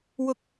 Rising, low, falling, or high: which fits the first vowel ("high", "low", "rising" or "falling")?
high